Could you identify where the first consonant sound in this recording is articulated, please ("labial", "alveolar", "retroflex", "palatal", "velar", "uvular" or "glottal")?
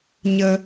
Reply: palatal